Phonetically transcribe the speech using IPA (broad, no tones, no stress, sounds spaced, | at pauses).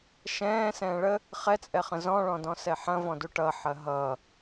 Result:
ʃ ɛ̃ː s ɛ̃ː ɭ ə | χ ɛ t͡sʼ ɛ χ ə̃ z ɔ̃ ɭ ɔ̃ d ɔ̃ s ɛ ħ ɐ̃ v ɔ̃ d u ʈ ʌ ħ ɐ ɦ ʌ